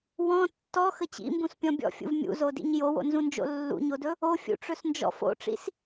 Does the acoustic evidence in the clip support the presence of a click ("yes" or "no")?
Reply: no